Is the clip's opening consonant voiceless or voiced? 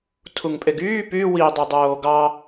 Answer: voiceless